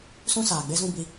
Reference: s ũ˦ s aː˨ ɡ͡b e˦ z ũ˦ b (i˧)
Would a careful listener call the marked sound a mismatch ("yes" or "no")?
no